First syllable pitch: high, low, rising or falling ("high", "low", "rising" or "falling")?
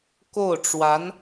falling